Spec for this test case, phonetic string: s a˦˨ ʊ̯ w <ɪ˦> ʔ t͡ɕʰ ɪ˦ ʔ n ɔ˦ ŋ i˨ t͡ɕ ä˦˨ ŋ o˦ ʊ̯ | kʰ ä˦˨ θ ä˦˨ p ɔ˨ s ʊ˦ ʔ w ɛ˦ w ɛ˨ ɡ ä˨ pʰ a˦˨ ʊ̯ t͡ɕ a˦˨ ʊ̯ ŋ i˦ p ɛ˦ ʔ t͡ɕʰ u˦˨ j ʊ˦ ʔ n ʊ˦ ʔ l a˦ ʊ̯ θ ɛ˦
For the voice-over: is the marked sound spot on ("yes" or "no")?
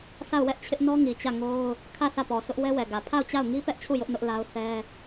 no